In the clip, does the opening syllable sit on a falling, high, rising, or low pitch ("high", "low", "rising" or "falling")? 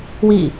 falling